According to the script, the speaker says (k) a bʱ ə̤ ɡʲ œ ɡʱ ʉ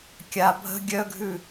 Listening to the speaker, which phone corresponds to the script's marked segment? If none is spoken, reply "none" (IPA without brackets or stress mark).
kʲ